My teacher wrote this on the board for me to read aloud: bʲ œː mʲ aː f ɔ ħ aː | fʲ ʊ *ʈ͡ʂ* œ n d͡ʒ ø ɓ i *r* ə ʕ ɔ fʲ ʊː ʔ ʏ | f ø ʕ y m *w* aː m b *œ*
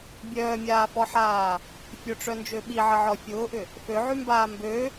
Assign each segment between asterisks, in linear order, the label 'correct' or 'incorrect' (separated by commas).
correct, incorrect, incorrect, incorrect